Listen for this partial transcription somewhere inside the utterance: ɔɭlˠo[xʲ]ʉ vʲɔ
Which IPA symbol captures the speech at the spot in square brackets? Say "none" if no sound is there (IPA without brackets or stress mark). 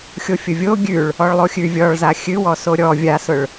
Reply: xʲ